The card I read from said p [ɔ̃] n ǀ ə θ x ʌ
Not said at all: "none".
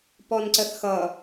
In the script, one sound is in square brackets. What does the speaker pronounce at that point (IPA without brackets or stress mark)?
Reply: ɔ